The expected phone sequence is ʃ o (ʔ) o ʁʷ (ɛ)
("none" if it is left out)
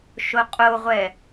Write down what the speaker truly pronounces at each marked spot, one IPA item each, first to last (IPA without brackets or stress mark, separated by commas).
qʼ, ɛ